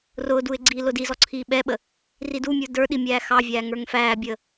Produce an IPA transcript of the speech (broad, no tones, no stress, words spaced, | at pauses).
rʊːduɪ̯ ɡ͡ǀiːlʊdizɔ ǀʰiːɓɛɓə | ridumʲə˞ də˞ ɗimʲæːxɑvʲæː ŋə˞ŋfæːbʲəː